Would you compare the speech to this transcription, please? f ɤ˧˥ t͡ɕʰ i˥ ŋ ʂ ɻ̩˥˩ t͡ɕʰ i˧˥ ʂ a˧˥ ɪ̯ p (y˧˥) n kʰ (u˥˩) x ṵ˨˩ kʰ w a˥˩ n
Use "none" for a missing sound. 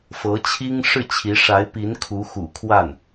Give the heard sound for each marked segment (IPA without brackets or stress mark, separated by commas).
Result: i˧˥, u˧˥